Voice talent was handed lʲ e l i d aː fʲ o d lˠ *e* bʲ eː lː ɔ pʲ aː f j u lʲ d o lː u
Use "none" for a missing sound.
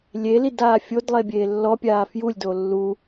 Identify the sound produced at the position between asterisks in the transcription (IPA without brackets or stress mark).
e